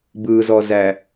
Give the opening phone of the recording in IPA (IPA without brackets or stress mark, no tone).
b